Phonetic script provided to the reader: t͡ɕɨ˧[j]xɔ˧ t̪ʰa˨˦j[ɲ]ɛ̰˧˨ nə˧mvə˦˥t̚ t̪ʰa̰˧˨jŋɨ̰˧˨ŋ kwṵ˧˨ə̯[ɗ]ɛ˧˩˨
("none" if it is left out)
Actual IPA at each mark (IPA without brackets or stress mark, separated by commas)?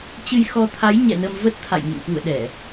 j, ɲ, ɗ